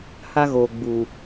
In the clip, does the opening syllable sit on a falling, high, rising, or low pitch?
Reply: high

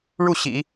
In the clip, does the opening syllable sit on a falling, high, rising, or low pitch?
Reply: falling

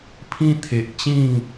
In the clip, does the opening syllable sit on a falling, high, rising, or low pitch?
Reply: high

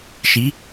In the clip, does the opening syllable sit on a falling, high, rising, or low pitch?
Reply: rising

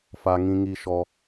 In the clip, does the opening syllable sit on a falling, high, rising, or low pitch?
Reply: high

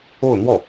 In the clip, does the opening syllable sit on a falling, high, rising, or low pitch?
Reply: falling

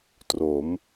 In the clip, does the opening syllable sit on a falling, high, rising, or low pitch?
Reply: rising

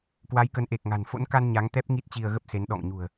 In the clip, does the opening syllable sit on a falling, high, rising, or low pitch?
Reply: rising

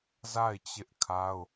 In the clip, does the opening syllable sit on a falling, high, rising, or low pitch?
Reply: falling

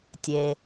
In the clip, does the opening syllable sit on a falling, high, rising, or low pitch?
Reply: low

